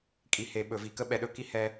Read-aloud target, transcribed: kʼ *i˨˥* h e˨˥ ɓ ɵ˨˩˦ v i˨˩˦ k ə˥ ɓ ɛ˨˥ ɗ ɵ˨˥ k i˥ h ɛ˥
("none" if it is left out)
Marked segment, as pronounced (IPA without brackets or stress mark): i˨˥